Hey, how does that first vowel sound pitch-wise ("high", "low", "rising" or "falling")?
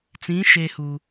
rising